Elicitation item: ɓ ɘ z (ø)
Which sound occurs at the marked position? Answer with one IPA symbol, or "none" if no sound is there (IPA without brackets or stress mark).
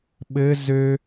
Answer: ø